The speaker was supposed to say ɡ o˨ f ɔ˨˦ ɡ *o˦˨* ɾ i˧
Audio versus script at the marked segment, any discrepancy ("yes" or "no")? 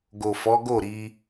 no